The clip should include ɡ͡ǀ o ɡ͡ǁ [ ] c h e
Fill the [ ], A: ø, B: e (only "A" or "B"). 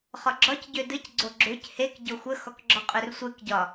A